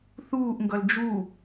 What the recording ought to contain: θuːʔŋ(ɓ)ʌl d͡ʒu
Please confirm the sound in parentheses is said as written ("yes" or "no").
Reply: no